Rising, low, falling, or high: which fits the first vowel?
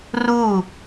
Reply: falling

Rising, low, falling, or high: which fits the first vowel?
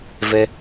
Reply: high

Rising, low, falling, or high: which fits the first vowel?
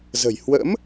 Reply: low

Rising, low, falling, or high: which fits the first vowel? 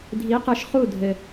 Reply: rising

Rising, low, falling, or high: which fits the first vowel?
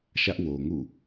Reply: high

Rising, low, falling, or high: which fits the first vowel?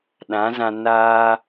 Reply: rising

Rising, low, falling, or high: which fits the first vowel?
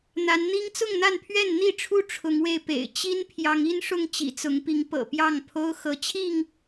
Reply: rising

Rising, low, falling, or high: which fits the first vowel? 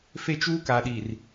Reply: high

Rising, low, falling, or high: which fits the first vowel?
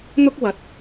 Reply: high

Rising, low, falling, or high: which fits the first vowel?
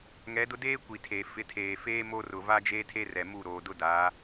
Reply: rising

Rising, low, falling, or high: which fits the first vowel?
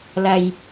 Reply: low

